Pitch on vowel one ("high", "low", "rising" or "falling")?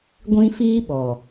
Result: high